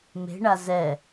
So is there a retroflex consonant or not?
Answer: yes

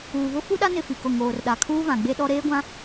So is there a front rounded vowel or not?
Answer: no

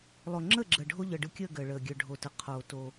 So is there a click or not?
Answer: yes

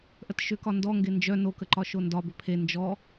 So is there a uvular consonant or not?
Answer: no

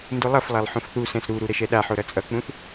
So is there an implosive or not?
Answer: yes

